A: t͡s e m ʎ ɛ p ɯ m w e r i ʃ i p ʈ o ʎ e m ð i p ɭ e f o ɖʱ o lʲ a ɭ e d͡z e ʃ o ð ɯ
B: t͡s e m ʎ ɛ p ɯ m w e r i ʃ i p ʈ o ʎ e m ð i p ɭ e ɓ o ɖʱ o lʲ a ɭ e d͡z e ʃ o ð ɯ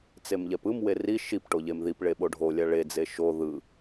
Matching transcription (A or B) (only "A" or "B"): B